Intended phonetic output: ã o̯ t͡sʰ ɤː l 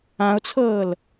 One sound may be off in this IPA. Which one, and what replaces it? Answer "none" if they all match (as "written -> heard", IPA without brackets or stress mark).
none